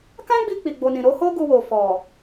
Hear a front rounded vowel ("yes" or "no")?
no